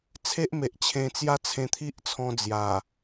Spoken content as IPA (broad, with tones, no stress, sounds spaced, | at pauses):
t͡sʰ e˦ ʔ m e˨ ʔ t͡ɕʰ ẽ˧ t͡s j a˦ t͡sʰ ẽ˧ t̪ʰ i˦ ʔ t͡sʰ ɔ̃˧ d͡z j a˨˩